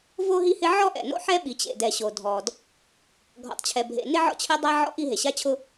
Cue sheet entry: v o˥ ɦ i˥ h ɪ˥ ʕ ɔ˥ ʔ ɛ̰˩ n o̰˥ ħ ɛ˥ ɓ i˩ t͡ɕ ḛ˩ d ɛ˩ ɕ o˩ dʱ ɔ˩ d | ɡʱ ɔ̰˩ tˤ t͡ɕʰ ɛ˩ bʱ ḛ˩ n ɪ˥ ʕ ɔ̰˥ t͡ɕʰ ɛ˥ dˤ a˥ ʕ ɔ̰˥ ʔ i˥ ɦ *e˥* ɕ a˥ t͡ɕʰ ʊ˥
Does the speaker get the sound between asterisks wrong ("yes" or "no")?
yes